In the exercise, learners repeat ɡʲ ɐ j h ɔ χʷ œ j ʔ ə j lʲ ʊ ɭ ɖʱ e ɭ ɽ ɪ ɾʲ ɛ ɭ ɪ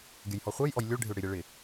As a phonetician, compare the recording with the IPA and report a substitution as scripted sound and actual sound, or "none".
ə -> ɔ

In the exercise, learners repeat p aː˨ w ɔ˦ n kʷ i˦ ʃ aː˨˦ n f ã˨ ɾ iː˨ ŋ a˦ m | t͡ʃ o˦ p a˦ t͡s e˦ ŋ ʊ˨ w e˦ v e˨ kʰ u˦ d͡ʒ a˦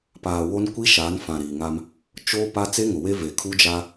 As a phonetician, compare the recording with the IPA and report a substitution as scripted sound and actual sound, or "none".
ɔ˦ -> o˦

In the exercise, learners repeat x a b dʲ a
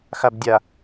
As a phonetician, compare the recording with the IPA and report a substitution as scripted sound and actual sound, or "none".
none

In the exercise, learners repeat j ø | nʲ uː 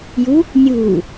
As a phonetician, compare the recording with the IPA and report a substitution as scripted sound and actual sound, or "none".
ø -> u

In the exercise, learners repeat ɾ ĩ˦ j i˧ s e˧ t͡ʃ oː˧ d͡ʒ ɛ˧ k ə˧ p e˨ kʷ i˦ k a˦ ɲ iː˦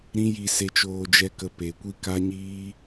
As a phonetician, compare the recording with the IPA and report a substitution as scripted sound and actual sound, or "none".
none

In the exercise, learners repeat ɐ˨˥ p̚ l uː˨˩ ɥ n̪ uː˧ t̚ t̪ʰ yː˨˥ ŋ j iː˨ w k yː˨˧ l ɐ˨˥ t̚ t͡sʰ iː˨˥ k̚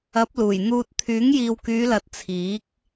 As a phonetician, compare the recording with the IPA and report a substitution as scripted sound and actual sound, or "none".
ɥ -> j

